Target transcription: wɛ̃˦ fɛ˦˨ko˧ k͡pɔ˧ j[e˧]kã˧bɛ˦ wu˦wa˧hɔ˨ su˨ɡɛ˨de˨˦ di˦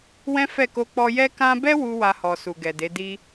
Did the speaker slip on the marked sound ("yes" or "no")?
yes